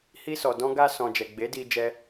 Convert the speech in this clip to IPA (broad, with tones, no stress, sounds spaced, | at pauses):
h i˧ s ɔ˨ d ɔ̃˧ ɡ a˧ s ɔ̃˨ d͡ʒ ɛ˨ ɡ͡b e˨˦ d i˧ d͡ʒ ɛ˧